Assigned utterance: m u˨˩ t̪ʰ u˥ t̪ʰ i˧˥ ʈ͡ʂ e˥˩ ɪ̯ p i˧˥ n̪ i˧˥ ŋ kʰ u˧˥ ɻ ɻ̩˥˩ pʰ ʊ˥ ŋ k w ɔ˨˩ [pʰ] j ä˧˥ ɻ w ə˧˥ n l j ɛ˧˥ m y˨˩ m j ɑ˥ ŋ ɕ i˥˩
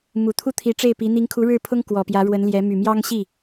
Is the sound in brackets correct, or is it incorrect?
incorrect